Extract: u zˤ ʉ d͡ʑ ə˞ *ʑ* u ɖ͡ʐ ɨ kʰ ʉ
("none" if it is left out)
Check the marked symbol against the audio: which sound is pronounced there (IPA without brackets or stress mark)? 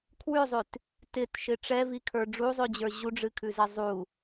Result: ʑ